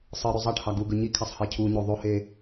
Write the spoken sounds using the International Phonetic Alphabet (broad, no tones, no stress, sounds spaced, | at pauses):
sˤ ɯ ɾ ø zˤ ɑ ʈ h ɑ ɡ u ɡ ɯ ɲ i kʰ æ sˤ h e cʰ u ɲ o ðˤ o h e